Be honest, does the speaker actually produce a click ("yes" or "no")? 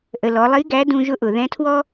no